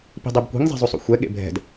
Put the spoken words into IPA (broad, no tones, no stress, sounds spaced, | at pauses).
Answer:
p i̤ dˤ i b kʷ i̤ ŋ zˤ e̤ zˤ u sˤ ṵ xʷ ɛ ɠ ḛ bʱ ɛ̤ d